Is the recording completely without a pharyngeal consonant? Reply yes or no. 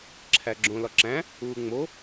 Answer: yes